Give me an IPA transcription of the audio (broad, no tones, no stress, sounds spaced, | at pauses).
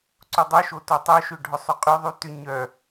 ǀ ʊ dˤ œ ʃ o t o tˤ œ ʃ ʏ ɖʱ ʊ sˤ ʏ qʼ y ðˤ y t ʏ ɲ œ